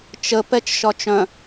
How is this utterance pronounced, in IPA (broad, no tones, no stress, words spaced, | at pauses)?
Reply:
t͡ʃə pɛt͡ʃʃɒt͡ʃœ̃